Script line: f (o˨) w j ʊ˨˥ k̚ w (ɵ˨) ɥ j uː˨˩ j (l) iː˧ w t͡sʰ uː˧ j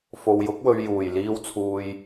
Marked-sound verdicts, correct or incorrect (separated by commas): correct, correct, correct